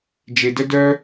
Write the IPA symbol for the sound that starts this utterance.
d͡ʒ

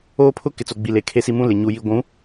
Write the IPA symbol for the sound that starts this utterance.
oː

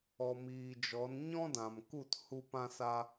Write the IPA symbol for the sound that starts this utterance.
ɔ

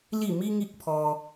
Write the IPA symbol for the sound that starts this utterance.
l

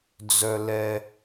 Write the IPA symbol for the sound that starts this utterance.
d͡z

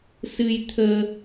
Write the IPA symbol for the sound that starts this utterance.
s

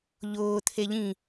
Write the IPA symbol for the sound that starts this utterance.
ʎ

